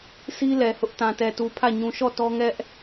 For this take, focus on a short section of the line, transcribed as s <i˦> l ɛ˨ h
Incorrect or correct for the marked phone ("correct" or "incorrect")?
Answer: correct